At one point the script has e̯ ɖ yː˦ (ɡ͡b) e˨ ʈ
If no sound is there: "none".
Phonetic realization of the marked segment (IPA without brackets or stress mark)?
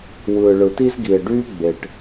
ɡ͡b